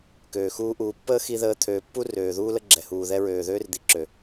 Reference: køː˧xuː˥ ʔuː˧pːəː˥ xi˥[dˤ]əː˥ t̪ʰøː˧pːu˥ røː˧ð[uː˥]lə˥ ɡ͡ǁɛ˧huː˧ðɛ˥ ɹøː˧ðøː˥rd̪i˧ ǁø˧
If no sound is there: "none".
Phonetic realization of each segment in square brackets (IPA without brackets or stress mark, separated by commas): ð, uː˥